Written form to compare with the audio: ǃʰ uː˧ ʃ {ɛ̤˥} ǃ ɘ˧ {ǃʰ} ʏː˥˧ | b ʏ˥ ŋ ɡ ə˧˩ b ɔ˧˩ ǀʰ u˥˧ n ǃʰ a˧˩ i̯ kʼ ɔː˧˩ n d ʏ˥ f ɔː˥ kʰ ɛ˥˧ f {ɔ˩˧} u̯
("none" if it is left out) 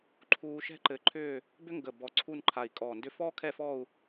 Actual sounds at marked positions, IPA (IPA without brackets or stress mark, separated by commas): ɛ̤˥, ǃʰ, ɔ˥˧